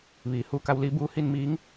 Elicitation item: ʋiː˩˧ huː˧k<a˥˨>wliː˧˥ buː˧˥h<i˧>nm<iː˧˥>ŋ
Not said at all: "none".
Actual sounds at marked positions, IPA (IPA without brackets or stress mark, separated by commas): a˧, i˧, iː˧˥